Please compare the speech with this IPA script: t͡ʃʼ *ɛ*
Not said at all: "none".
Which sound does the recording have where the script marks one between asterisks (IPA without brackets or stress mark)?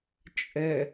ɛ